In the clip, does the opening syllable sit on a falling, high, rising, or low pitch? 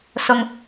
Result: low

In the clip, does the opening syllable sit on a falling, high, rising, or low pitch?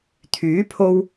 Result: rising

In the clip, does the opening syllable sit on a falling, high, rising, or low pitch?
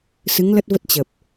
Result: rising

